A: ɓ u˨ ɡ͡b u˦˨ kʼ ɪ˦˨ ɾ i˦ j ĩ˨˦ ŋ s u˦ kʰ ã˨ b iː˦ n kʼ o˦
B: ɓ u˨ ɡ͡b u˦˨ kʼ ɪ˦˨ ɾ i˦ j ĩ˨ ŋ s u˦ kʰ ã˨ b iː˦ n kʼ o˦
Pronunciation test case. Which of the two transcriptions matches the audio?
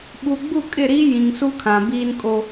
B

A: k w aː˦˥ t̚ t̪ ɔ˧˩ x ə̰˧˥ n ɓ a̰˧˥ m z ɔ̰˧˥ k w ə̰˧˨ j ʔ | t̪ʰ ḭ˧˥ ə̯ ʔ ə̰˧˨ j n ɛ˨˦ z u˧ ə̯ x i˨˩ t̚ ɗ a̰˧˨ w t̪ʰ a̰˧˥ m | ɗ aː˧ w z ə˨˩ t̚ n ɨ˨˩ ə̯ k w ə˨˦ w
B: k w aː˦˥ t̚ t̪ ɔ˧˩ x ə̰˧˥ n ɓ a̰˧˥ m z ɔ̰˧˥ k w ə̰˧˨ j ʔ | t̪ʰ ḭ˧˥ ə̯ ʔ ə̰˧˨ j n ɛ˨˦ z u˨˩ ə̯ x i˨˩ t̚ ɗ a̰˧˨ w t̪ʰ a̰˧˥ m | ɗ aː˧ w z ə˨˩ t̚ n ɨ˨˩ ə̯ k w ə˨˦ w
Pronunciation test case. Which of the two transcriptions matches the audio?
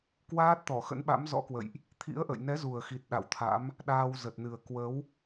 B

